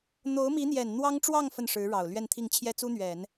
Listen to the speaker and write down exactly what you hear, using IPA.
n̪ o˧˥ ʊ̯ m i˧˥ n̪ j ɛ˨˩ n n̪ w ɑ˥ ŋ ʈ͡ʂ w ɑ˥˧ ŋ f ə˥˩ n ʂ ɻ̩˧˥ ɻ ɑ˨˩ ʊ̯ l ɥ ɛ˥˧ n t̪ʰ i˥˩ ŋ t͡ɕʰ j ɛ˥ t͡s u˥ n̪ ɥ ɛ˨˩˦ n

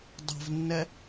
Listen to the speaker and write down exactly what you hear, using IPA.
dˤ ɛ̤ v nː ɛ

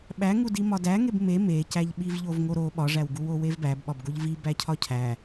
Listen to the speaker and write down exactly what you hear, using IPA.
ɓ æ ŋ u d i m ɒ d æ ŋ e b m e m e c æ ʎ ɓ i v ʎ o v ŋ o ɾ o ɓ ɒ ʐ æ w ɡ u w o w e v b æ b ɓ ɒ b ɡ o ʎ v i b æ cʰ ɒ cʰ æ

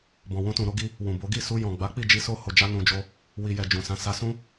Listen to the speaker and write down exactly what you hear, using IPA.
b ɔ̃˨ w ũ˧ t ũ˨ ɾ o˧ ɡ i˧ | w ũ˨ b o˨˦ ɡ i˦˨ s u˧ j ɔ̃˨ ɡ͡b a˨˦ k͡p i˦˨ d͡ʒ i˧ s o˧ h o˨ d͡ʒ a˧ n ũ˨ d͡ʒ o˧ | w i˨ j ɛ˨ d͡ʒ ũ˨ s ã˧ s a˦ s ũ˦

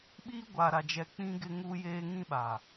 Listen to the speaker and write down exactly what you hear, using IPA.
ɓ iː˦ ɡʷ aː˨ ɾ a˨ d͡ʒ ɛ˨ k͡p ĩ˦ ɡ ɪ˦ ŋ u˦ j eː˦ ŋ ĩ˦ ɓ a˨

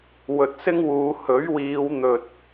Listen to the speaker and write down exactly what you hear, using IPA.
w ɵ˨ t̚ s ɪ˥ ŋ w uː˨˧ h ɵ˨˥ ɥ w iː˨˧ w n̪ ɵ˨ t̚

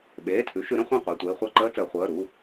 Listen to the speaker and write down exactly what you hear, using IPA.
ɓ eː˩˧˩ tʰ ʉ˩˥ ʃ ʉ˩˥ ɾ ə̃˩˧ χʷ ã˥˨ qʷ e˩˧˩ tʷ eː˧ χʷ a˥˨ ǃ əː˥ t͡s əː˩˧ χʷ əː˩˧˩ ɾ u˩˧˩

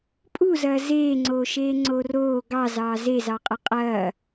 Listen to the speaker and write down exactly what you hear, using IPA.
pʼ u z ɐː z eː ŋ͡ǀ oː ʃ eː ŋ͡ǀ oː r oː ɡ ɑ z ɑː z e z ɑ qʼ ɐ qʼ ɐː

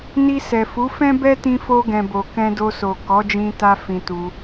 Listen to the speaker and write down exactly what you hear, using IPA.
n i˧ s ɛ˨ f u˨˦ f ɛ̃˦ b ɛ˦ t ĩ˧ f o˧ ɡ ɛ̃˨ b o˨ k ɛ̃˧ d o˧ s o˨ k ɔ˨˦ d͡ʒ ĩ˧ t a˧ f ĩ˧ t u˧

